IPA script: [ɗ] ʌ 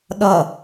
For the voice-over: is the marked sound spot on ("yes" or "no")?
yes